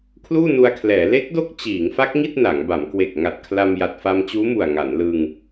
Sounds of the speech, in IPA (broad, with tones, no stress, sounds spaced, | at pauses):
kʰ l uː˥˩ n u˧ a̯ kʰ l ɛː˩˦ l e˦˥ k̚ d o˦˥ k̚ t͡ɕ iː˩˦ ŋ f a˦˥ k̚ ŋ i˥˩ t̚ n a˩˦ ŋ b a˩˦ m k w e˨˩ k̚ ŋ a˨˩ t̚ kʰ l a˧ m j a˨˩ t̚ f a˧ m t͡ɕ uː˦˥ m u˨˩ a̯ ŋ a˩˦ n l ɯ˧ ŋ